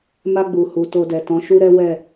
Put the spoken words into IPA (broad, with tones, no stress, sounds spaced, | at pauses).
m a˧ ɡ͡b u˨ h u˨ t o˧ d ɛ˨ t ɔ̃˨˦ ʃ u˦ ɾ ɛ˦ w ɛ˦˨